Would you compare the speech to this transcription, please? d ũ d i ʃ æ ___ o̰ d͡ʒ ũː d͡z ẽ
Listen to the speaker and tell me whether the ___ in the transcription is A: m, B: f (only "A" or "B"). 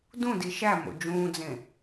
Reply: A